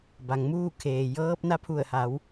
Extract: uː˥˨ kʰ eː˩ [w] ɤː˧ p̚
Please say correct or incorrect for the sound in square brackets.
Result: incorrect